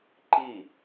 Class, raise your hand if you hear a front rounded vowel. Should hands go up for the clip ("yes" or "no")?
no